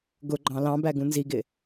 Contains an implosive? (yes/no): no